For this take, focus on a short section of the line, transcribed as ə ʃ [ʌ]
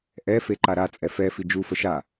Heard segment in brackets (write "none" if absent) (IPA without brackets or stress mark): a